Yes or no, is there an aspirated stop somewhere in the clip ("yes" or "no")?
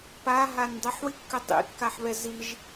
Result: no